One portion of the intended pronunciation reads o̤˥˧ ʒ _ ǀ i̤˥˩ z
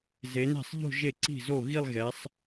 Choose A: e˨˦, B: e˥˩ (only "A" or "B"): B